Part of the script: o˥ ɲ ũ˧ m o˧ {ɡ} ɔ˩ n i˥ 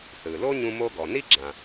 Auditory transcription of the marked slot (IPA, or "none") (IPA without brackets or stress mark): ɡ